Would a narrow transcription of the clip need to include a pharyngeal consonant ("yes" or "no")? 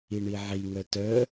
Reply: yes